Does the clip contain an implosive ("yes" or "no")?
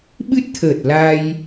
yes